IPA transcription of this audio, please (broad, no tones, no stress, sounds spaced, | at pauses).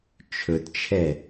t͡ʃʰ ɵ t t͡ʃʰ ɛ